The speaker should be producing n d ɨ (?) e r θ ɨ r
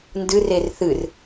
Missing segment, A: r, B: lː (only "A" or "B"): A